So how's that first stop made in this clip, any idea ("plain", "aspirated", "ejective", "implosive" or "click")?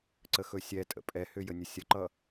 click